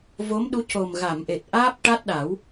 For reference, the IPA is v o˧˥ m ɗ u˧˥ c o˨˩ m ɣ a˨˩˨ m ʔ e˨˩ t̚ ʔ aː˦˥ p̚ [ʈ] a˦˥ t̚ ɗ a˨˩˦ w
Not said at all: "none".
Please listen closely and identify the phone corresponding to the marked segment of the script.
ʈ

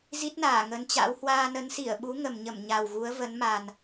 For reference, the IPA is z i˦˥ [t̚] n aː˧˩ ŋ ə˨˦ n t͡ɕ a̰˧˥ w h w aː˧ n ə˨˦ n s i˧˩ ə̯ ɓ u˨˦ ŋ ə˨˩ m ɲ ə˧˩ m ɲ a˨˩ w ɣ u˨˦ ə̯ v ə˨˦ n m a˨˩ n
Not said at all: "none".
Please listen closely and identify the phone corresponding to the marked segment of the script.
t̚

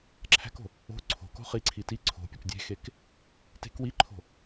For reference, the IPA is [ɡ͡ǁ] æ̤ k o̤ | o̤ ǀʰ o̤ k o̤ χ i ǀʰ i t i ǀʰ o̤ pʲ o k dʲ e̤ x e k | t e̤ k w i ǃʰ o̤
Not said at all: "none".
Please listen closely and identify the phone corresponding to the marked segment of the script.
ǁʰ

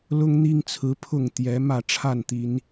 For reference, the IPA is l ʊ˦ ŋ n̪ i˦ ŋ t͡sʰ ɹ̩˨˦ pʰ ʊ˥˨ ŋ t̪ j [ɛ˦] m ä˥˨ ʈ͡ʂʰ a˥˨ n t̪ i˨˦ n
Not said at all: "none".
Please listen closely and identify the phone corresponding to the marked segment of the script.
ɛ˨˦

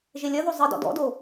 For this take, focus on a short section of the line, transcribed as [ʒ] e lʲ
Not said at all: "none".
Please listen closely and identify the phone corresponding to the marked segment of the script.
ʒ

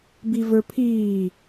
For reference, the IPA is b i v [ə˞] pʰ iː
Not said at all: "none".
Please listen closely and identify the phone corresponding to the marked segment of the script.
ə˞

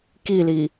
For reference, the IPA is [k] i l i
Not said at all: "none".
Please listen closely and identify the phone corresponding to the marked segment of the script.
k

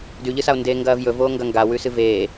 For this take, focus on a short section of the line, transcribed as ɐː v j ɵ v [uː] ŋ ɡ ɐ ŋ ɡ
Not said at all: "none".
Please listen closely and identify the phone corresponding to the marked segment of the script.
oː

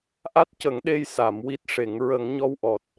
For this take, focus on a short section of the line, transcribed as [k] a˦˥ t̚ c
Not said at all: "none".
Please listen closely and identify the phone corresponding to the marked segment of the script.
ʔ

